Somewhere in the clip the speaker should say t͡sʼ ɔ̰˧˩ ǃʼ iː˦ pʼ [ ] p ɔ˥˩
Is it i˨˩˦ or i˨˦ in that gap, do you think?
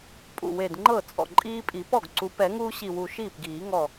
i˨˩˦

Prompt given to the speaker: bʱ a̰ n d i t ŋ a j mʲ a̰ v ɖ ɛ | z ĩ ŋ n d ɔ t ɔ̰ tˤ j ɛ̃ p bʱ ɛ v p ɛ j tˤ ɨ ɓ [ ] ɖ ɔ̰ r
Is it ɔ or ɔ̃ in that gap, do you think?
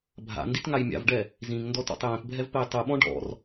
ɔ̃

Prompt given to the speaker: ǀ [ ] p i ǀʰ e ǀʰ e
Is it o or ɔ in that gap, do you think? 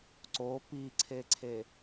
o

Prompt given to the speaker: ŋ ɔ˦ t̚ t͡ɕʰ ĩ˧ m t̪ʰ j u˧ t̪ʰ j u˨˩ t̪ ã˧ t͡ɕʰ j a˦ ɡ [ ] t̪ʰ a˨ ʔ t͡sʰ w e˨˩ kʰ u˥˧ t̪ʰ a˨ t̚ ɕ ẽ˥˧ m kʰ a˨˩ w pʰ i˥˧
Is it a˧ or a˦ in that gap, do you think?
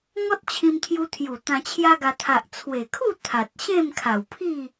a˧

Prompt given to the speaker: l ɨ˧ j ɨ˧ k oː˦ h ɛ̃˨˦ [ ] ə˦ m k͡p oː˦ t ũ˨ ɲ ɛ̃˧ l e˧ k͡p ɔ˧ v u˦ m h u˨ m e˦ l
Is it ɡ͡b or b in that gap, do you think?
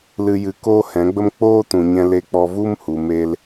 ɡ͡b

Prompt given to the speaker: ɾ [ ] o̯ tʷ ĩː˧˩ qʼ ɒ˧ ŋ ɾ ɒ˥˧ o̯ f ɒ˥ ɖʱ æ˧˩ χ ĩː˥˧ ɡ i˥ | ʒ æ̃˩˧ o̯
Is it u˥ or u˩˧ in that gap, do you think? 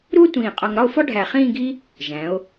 u˥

